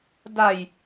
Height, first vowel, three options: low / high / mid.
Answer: low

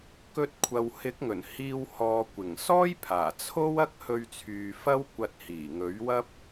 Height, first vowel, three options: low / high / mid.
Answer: mid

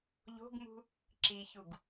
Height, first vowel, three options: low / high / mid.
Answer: mid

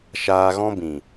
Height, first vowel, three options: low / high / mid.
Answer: low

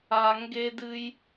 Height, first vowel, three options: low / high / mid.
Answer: low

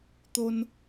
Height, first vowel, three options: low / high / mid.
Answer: mid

